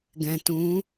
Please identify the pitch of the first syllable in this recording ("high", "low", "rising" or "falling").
low